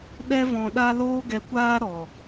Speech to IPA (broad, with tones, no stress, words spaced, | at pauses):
ɗɛ˦vɔ̃˧ɗa˦ loː˦ɡɛ˧kʷaː˦ ɾɔ˨